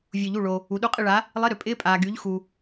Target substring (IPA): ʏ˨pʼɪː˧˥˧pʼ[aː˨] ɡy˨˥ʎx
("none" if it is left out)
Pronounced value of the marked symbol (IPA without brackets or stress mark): aː˨